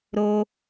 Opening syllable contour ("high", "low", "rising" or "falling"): high